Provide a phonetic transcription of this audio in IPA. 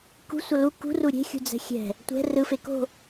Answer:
k ṳ sʷ ʌ l u k ṳ r u ɾʲ e̤ xʲ ṳ d͡z ɛ̤ xʲ ɛ̤ | tʷ ɛ̤ r ɯ f e k o̤

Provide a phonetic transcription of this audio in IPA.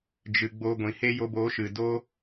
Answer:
d͡ʒ ɨ˨ ɡ͡b o˧ ɡʷ ĩ˨ h e˦ j o˧ b oː˨˦ ʃ ɨ˨ d o˦

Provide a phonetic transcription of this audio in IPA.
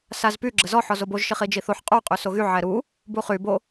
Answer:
s a z p y ɡ͡ǁ ə z ɔ ħ ɔ z o b o ʒ ʃ i χ i d͡ʒ i θ o ħ qʼ u qʼ y s o ɣ y ʕ ɛ ɾ u | b u χ y b o

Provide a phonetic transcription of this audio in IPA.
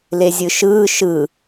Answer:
l e zʲ ɯ ʃ ɯː ʃ ɯ

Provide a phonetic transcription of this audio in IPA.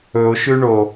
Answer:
ɵ o̯ ʃ ʉ ɳ o

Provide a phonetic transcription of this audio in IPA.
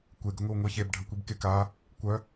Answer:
kʷ e ɡ ə ŋʷ i w ŋʷ i ç e b ɖʱ ə kʷ i b k e k a | kʷ œ

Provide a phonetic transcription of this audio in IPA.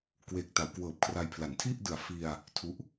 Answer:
k w eː˨˩ k̚ t a˩˦ w k w ɤː˨˩ p̚ kʰ r a˧ j pʰ l a˩˦ n tʰ i˥˩ ʔ d ɯ˨˩ a̯ f i˧ a̯ | tʰ u˦˥ ʔ

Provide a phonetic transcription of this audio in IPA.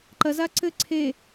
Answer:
ǃ ɐ z a ǀ ɘ ǀʰ e

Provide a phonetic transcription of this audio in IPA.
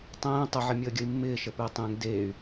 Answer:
tˤ ẽː tˤ ə ʕ ɪ mʲ əː ɡʲ ə i̯ mː ɪː ʃ ə p ɪː tˤ ẽ ŋ d eː y̯

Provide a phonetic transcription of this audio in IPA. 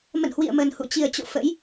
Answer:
m ə̰˧˨ n h w ḭ˧˨ ə̯ m ə˨˩ n h ṵ˧˨ t͡ɕ i˨˩ ə̯ t͡ɕ o̰˧˨ f ə̰˧˥ j

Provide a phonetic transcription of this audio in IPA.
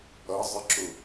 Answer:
ʌ zˤ ɪ ǁ ʊ

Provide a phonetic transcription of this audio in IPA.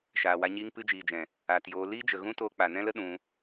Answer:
ʃ aː˨ w a˧ ɲ iː˧ ŋ p ɨ˧ d͡ʒ iː˨ d͡ʒ ɛ̃˨ | aː˨ t j oː˧ l iː˦ d͡ʒ ə˨ ɣ ũ˦ t oː˧ k͡p a˨ n ɛ̃˦ l ə˦ ɗ ũ˧

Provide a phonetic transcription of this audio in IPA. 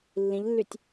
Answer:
lː ĩ ʎ lː y tʲ

